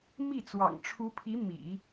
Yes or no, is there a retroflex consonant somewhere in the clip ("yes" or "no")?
yes